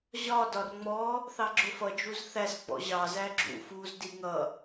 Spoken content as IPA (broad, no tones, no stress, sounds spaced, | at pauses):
ʑ ɒ d ɒ r ŋ͡m ɔ | θ ɑ ɡ͡ǁ ʊ f ʌ d͡ʒ u z θ æ s ɡ͡b ɔ̰ ʑ ɑ z æ ɡ͡ǁ ṵ f u z d i ŋ ʌ